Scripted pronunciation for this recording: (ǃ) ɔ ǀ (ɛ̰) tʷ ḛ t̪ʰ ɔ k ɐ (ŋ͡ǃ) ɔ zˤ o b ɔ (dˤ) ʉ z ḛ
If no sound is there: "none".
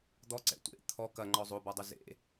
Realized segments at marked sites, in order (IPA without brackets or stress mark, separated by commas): d̪, ɛ̰, ŋ͡ǃ, dˤ